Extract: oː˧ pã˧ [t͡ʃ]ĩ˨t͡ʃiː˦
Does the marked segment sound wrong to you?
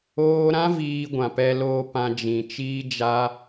yes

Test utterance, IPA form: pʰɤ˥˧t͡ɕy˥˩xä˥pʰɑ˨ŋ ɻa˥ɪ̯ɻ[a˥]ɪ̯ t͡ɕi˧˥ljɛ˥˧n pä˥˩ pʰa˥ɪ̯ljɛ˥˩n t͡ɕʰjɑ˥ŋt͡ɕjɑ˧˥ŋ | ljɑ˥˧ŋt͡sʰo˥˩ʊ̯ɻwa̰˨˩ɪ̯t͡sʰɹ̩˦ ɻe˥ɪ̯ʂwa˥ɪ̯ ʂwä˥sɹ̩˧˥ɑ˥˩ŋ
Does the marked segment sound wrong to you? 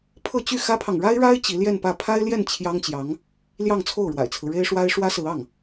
no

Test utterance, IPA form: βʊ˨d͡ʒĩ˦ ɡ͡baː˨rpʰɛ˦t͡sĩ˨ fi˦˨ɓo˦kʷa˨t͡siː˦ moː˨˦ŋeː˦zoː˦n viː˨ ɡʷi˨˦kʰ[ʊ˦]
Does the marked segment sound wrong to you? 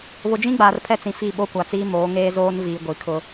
no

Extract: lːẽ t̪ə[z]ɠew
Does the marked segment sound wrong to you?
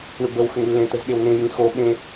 no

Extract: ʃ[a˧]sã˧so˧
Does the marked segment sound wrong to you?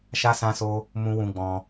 no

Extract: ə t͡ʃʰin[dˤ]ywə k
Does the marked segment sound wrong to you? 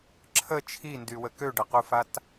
yes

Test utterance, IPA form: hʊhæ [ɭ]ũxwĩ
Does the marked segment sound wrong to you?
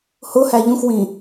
yes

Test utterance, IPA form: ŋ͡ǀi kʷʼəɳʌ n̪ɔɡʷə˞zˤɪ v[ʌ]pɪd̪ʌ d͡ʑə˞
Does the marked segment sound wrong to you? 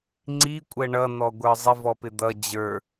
yes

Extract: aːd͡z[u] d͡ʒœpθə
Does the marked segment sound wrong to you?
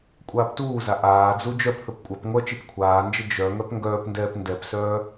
no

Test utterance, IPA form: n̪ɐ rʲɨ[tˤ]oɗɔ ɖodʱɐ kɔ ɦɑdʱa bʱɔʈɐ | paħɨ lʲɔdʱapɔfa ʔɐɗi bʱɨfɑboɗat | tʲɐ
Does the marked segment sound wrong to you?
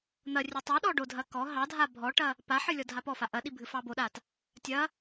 no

